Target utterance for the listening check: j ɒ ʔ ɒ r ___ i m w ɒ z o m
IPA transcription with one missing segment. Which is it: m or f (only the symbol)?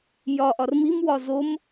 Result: m